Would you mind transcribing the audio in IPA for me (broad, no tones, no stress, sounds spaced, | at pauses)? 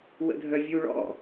w ə̰ dʱ œ vʲ u ɭ ɔ̰